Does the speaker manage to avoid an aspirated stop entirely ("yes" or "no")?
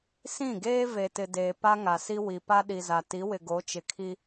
no